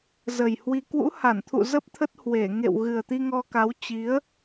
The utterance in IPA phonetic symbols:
zə˨˩jhwi˧ kwṵ˧˥ha˧˩nt̪ʰṵ˧˨ zə˦˥p̚t̪ʰə˦˥t̚ hwe˧˩ŋḛ˧˨w ɣɨ˨˩ə̯t̪i˧ŋɔ˧ka˨˦w t͡ɕi˨˦ə̯

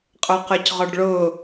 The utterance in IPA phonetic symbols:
qʼə˞qə˞cʁɔɖɭʊ

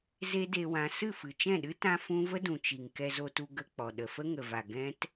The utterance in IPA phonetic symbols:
ze˦de˧wã˧ sɨ˦˨fɨ˨t͡ʃɛ̃˦˨ɗɨ˦ tã˦fũ˦ və˦dũ˨t͡ʃi˨ŋ kɛ˧zo˧tu˧ ɡə˦ k͡pɔ˨ ɗə˨fə˦ŋə˨va˨ ɡɛ̃˦t

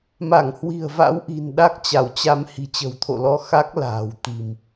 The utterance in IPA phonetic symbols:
ma˧˩ŋhwi̤˨˩ə̯va̰˧˥wʔi̤˨˩n ɗa˦˥k̚t͡ɕa˧˩wt͡ɕa˧m hi̤˨˩t͡ɕə̤˨˩wt̪ʰo̰˧˨lɔ˧ xa˦˥k̚ la̤ː˨˩wt̪i̤˨˩m

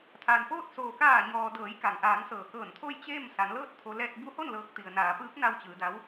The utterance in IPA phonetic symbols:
t̪ʰa˩npoː˥˨t̚ soː˩kaː˧˩ɲɔː˩ dɤː˩˧jka˩ŋʔaː˩˧ŋsɤː˩ kɤː˧˩nt̪ʰo˥˨jt͡ɕe˥˨m sa˩˧nlɤː˥˨t̚t̪ʰo˧ lɛː˧t̚bu˧˥ho˥˨n lɤː˧k̚t̪i˩ə̯ naː˩˧pɯː˧˥k̚na˧w t͡ɕɯː˩˧da˧˥w

